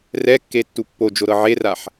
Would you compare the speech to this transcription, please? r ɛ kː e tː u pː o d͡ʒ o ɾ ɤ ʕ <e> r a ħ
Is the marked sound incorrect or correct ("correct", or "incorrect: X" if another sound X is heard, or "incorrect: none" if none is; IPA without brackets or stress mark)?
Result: correct